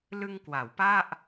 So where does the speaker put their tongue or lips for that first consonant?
tongue tip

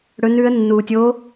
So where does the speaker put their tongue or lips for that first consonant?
retroflex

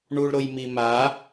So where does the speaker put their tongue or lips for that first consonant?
retroflex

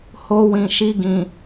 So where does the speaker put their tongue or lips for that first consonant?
throat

